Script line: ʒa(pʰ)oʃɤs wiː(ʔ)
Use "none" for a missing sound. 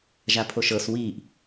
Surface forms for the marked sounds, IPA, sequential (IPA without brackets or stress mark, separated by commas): pʰ, ʔ